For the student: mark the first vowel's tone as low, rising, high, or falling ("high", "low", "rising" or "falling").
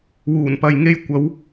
low